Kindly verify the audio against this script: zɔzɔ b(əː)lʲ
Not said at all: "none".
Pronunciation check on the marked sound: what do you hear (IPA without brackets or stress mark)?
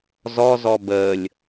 əː